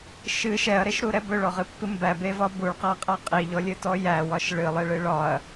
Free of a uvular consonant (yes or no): no